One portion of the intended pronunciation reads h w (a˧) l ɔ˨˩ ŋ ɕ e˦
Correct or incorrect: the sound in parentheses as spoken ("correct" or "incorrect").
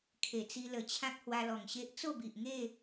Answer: correct